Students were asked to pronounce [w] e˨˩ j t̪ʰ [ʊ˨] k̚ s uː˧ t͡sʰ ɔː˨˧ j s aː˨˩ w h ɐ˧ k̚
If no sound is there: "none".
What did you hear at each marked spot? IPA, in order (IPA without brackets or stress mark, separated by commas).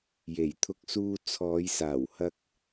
j, ʊ˧